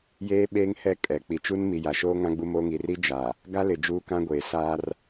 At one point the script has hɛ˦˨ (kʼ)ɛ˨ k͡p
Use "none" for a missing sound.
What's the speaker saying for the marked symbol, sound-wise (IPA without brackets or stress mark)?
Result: kʼ